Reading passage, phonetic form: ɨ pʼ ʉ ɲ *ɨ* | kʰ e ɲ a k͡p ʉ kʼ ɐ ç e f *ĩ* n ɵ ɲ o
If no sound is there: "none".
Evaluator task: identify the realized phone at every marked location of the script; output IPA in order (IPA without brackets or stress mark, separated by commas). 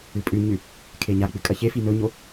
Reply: ʉ, i